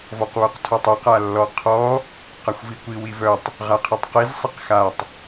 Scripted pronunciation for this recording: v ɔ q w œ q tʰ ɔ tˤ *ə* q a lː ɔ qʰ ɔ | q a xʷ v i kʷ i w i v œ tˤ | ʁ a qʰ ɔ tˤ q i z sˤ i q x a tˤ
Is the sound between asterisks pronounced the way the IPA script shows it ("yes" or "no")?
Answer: no